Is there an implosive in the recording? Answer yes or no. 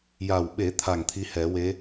yes